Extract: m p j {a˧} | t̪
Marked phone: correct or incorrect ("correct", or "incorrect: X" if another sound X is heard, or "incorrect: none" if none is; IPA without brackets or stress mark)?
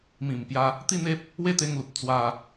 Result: correct